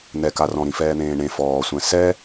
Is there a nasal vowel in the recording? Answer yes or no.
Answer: yes